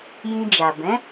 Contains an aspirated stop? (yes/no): no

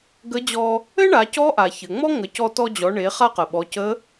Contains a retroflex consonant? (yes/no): yes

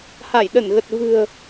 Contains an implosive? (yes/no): yes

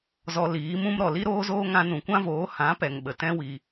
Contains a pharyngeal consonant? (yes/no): no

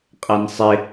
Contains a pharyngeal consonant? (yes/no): no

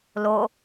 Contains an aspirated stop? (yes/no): no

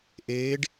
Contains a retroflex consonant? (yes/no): yes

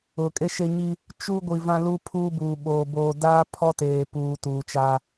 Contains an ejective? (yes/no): yes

